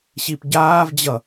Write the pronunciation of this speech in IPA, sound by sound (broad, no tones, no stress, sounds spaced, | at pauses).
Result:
ɕ i p ɟ aː v d͡ʑ ʌ